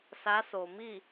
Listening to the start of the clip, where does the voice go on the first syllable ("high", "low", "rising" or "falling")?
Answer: rising